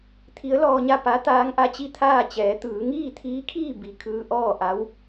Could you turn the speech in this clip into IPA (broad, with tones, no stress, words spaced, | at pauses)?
t̪ʰi˧˥ə̯lɔː˧ɲa˥˨ pa˧˥ t̪aː˧˥ŋʔa˧t͡ɕi˥˨t̪ʰaː˥˨ t͡ɕɛː˩˧ t̪ɯː˩˧ŋiː˥˨t̪ʰiː˧˥kʰiː˥˨ bi˧˩kʰɯː˧ʔɔː˥˨ʔa˧˥w